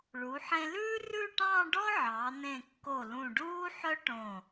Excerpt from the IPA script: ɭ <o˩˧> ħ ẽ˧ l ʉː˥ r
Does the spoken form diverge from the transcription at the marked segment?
yes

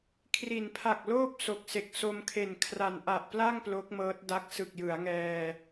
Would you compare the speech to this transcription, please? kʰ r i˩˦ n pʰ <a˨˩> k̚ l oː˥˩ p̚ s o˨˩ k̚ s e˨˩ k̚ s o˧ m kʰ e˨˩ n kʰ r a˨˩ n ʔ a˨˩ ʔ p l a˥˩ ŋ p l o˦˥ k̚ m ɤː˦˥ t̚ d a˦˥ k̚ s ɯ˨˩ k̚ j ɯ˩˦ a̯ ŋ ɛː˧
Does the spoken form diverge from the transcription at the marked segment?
no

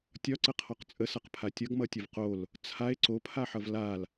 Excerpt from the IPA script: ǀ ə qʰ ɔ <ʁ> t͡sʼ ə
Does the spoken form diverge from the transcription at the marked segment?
yes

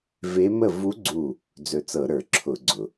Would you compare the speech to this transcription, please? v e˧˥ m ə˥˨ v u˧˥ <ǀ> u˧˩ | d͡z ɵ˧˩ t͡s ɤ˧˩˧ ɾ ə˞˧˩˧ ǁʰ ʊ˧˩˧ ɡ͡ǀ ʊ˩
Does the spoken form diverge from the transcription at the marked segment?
yes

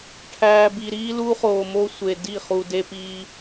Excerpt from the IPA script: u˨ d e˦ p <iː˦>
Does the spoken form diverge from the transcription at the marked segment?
no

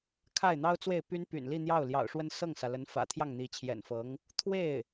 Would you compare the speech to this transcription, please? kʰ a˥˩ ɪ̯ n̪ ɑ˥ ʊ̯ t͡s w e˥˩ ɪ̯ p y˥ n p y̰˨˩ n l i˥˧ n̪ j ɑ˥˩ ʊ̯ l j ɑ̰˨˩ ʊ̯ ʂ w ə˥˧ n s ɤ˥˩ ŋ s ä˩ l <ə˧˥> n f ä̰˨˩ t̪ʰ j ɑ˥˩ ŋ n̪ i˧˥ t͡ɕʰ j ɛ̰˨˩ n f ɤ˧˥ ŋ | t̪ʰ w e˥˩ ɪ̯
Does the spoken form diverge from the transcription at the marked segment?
no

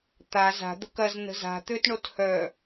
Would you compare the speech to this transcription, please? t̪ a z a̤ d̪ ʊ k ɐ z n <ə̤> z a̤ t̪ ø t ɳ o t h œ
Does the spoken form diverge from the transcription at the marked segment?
no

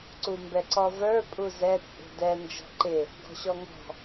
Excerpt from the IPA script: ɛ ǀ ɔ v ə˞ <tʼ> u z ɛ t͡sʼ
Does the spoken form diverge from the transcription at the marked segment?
yes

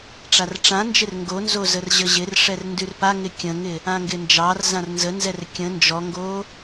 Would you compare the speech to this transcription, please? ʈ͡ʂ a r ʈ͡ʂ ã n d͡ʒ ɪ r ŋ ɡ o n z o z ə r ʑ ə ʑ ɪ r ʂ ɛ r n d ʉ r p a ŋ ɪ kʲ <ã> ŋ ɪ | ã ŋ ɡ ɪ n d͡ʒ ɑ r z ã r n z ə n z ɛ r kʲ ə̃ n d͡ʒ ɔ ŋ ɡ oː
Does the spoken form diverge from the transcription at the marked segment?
yes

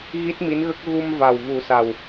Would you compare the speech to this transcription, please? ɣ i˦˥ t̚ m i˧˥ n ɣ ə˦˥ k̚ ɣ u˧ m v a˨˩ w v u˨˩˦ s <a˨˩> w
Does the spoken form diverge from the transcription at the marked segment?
no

